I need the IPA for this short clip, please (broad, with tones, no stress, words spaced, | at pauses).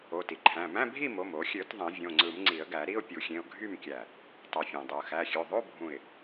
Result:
o˩˧˩ti˩ǃʰæ̃˩˧˩ mæ̃˧˥˧bʱi˥˨mo˩˧˩m o˨˩˦xʲø˨˩˦t ðˤẽ˨˩˦ vʲõ˩˧˩ŋ͡ǀɯ˨˩˦m ŋ͡ǀi˨˩˦ə̯ɡæ˨˩˦ɾi˧˥˧ʊ̯ pʲu˨˩˦xʲẽ˩˧˩ʊ̯ ɡʱy˥˨mkʲæ˧˩ | tˤu˩fʲæ̃˩dˤɯ˩ə̯ xæ˩˧˩xʲø˩˧˩ ðˤo˧˥˧ bʱũ˧˩ɪ̯